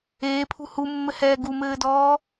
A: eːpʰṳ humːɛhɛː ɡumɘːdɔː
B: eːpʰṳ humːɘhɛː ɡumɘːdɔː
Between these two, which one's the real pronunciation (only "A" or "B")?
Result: B